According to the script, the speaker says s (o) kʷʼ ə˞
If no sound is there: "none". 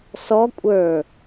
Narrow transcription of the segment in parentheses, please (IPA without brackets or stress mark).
ɔ